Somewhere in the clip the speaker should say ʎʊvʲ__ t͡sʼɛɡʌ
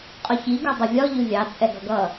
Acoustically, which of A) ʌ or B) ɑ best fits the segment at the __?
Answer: B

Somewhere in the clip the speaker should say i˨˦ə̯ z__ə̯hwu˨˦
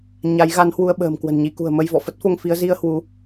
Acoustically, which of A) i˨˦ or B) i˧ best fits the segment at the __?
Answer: B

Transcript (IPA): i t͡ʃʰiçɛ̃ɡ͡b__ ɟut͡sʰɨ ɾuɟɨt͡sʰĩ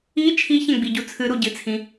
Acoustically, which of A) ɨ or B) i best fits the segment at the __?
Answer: B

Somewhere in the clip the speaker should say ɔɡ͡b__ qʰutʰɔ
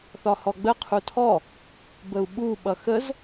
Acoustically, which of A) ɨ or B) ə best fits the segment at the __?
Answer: B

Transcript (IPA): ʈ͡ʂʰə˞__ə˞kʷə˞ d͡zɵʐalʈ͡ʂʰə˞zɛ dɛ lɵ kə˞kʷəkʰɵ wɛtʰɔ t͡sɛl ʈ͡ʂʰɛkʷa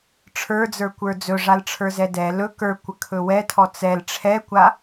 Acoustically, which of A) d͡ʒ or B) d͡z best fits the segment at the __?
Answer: B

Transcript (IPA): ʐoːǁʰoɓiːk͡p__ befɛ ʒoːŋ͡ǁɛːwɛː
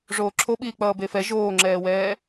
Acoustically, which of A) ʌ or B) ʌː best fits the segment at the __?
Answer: B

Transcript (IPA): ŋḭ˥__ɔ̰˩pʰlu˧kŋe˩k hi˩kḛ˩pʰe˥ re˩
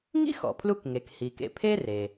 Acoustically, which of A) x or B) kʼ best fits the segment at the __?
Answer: A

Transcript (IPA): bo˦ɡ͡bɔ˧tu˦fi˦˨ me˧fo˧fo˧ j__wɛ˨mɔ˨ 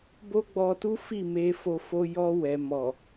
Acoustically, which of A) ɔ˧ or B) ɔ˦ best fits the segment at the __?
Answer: A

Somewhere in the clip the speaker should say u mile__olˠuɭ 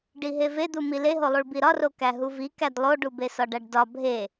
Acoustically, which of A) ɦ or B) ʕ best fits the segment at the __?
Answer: A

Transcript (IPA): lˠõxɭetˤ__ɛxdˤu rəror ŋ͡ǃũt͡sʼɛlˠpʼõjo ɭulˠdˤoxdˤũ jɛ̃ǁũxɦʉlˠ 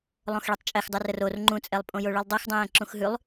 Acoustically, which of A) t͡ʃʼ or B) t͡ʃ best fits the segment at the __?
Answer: A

